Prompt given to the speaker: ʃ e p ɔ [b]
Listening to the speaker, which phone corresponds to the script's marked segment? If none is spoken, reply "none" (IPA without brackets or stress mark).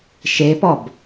b